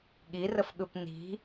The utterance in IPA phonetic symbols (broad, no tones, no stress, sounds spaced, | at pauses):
ɠ i r ə f ɠ ɯ p n i̤